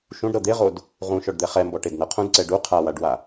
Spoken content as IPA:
ʃ ũ ɖ ɾ ɤ d̪ e ʁ o d | ʁ ũ ʃ ɔ ɖ d̪ ɛ χ ɛ m b ɔ ʈ e d n ɤ qʰ ũ d ǀ ɛ ɖ u qʰ a w a ɖ w a

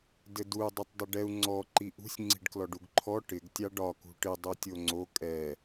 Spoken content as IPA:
d ɘ d u y̯ dˤ ɛ tˤ dˤ ɘ ɖ ɛ u̯ ŋ͡ǀ ɔ ǃ i ʔ ṳ sʲ ŋ͡ǀ i̤ ɖ k l ɔ ɖ u ɡ ǃʰ ɔ ʈ ɪ ɡ tʲ ɑ ɖ ɒ k ṳ ʈ ɪ dˤ u tʲ o ŋ͡ǀ o kʼ ɛ

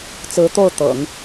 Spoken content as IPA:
t͡s ɹ̩˧˥ t̪ o˥˩ ʊ̯ t̪ ɤ̰˨˩˦ ŋ

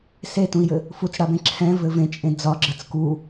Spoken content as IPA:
s e t ũ i̯ j ɘ | f u t͡s ɽ a b ẽ ǁʰ ɛ̃ v ɘ v ẽ t͡ʃʼ ẽ d͡z ɒ ɡ͡ǁ ə t͡s k u

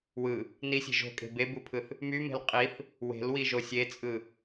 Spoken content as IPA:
w ɯ | n i sʲ e̤ ʒ o̤ kʼ e̤ b e b u pʰ ɯ θ | m y m e̤ l qʼ i θ | w e̤ l w i ʒ o sʲ e t͡sʼ ɯ

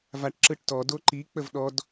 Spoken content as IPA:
v a ʈ ǁ ɯ ʈ t ɔ d o ǃ i k͡p ə v ɗ ɔ d

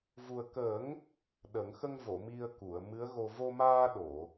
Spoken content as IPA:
v u˨˩ ə̯ k ə˨˩˦ ŋ | ɗ ə˨˩˦ ŋ x ə˧ ŋ v o˨˩˨ m i˧ ə̯ k u˨˩˨ ə̯ m ɨ˧˥ ə̯ ɣ o˧ v o˧ m aː˧ ɗ o˨˩˨

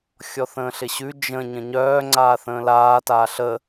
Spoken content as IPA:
xʲ ɔ θ ə̃ː ɬ ɪ ɕ ʉ d͡ʒ ə̃ ɲ ə̃ ɲ œː ŋ͡ǀ aː θ ə̃ː l aː t aː ɬ ə

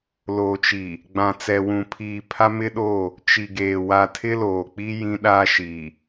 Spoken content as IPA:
l oː˨ t͡ʃ i˨ | ɡ͡b ã˨ t͡s ɛ˨ w ũ˨ pʰ iː˨ pʰ a˦ m ɪ˦ ɗ oː˦˨ | t͡ʃ i˨ ɡ eː˨ w a˨ tʰ ɪ˦ l oː˨ k͡p i˦ j ĩ˦ ɗ aː˦ ʃ iː˨

